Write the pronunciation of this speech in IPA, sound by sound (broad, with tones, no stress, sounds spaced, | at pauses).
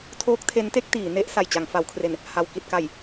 tʰ oː˦˥ k̚ tʰ e˦˥ n t e˥˩ k̚ t iː˩˦ n e˦˥ ʔ s a˨˩ j t͡ɕ a˩˦ ŋ f a˩˦ w kʰ r e˨˩ n | h a˨˩ w k i˨˩ t̚ k a˨˩ j